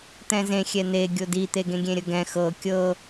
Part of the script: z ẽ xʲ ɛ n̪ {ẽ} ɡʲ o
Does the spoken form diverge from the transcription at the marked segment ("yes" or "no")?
yes